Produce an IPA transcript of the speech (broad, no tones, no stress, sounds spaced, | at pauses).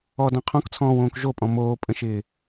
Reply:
ɔ d ɔ̃ qʰ ɔ̃ k t͡sʰ ɔ̃ː w õː k ʒ o pʼ ɔ̃ m oː pʼ ə̃ ʃ ɪː